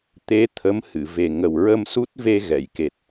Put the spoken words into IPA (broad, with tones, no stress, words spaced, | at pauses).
t̪e˧˥ t̪ʰə˧˥m hɨ˨˩˨ ve˨˩ ŋə˨˩wɹə˧msu˦˥t̚ve˧ ɣɛ˨˩˨jke˨˩t̚